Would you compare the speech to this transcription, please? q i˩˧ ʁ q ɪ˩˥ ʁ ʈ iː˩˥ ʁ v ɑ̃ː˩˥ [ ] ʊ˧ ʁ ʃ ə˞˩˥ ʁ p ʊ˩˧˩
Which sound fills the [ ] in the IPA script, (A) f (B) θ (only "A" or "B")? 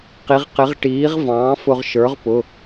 A